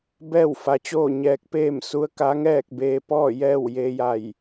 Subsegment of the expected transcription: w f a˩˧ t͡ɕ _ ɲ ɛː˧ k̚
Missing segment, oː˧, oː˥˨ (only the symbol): oː˥˨